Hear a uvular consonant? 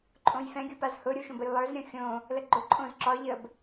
no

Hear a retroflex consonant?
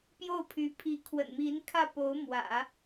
no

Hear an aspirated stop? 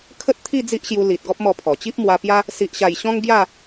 yes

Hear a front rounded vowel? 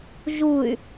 yes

